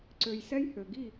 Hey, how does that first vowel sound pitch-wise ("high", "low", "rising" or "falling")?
low